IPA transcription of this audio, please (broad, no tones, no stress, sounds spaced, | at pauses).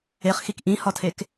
e χ x i k ʔ ĩ h ɒ tʰ e k